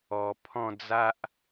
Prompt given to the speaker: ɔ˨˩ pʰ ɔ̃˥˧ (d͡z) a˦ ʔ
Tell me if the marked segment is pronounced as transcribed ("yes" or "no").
yes